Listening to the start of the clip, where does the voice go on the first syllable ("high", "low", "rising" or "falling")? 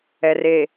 low